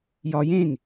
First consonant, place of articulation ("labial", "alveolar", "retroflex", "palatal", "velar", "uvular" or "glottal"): palatal